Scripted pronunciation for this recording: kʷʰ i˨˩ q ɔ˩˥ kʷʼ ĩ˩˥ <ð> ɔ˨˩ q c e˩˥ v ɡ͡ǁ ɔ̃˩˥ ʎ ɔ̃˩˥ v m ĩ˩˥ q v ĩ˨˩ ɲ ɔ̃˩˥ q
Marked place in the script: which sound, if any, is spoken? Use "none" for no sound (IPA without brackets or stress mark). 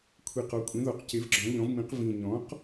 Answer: ð